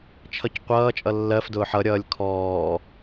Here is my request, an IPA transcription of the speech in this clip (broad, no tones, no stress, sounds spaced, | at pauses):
t͡ʃʰ ʌ c qʷ ʌː t͡ʃʼ ʌ lː ɜ f d ʊː ħ ʌ ɾʲ ʌː lʲ kʰ ɔː